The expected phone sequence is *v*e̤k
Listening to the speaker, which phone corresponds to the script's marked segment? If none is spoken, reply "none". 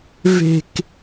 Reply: v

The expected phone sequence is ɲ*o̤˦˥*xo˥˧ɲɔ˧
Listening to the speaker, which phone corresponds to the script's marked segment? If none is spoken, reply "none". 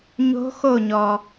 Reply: o̤˦˥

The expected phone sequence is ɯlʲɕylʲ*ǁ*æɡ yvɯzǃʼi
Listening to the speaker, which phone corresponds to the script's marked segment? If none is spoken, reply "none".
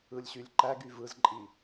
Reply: ǃ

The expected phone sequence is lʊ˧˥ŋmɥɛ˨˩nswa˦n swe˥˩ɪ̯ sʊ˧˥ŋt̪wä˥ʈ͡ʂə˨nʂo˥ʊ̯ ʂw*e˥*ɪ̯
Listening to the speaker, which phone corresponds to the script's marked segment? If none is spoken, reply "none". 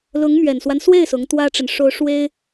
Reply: e˥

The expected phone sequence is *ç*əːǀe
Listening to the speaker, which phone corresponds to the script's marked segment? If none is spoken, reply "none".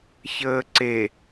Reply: ç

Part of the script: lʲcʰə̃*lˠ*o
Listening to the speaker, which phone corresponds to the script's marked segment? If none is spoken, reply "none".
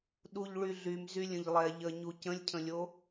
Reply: lʲ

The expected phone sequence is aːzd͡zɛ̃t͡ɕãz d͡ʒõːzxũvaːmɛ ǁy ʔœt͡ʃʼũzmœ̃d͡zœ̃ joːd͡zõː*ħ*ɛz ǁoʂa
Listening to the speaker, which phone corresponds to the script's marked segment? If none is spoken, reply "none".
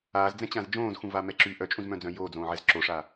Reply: ʕ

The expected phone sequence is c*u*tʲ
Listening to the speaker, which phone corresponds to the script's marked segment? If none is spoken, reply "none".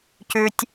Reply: ʉ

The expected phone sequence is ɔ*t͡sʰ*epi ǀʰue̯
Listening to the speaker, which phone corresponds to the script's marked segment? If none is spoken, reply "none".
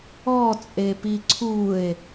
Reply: t͡sʼ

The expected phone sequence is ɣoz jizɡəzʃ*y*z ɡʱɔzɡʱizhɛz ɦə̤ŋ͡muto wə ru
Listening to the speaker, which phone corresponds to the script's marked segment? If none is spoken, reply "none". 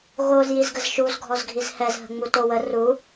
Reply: u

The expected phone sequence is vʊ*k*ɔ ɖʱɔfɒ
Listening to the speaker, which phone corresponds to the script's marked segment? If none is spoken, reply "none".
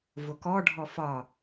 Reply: k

